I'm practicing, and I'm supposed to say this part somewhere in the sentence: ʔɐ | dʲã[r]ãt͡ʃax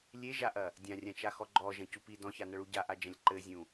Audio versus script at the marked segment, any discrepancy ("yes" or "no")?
yes